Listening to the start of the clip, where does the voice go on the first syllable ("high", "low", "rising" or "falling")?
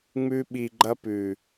high